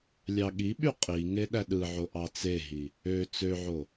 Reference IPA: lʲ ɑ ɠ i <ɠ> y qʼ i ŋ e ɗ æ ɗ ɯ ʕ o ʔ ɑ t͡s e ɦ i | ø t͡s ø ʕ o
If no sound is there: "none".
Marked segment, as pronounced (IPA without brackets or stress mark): ɓ